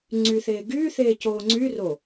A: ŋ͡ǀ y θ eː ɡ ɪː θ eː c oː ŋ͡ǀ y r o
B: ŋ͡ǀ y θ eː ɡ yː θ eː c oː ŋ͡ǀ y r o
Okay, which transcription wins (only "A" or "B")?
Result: B